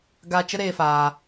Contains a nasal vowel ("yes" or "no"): no